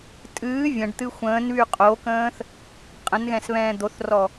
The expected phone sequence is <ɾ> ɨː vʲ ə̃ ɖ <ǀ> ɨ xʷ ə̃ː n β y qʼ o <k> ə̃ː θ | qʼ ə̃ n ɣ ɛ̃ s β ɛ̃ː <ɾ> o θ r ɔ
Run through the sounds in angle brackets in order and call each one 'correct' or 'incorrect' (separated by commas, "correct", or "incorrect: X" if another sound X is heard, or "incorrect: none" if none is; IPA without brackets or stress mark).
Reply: incorrect: tʼ, incorrect: t̪, correct, incorrect: d̪